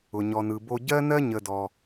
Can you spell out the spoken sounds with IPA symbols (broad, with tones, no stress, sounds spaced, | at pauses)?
ʊ˨ ɲ ɔ˨ n ɯ˨ b o˧ ɟ ɜ˦ n ɜ˦ ɲ ə˧ d ɔ˧